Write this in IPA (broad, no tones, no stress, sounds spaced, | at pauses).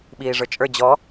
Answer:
ɓ iː ʐ ə˞ t͡ʃʼ ə˞ d͡ʑ ɔ